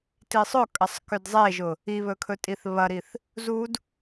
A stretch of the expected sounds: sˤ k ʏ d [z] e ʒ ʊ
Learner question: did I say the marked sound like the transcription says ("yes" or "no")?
no